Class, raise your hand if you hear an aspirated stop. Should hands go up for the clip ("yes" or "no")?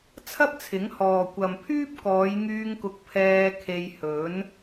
yes